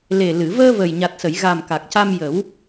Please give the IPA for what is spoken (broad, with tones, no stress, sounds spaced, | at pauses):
l e˨˩ l ɨ˨˩˨ v əː˧ v ə˨˩ j ɲ a˨˩ t̚ s ə˨˩˨ j ɣ a˨˩ m k a˨˩ k̚ c a˧ m j ə˨˩˦ w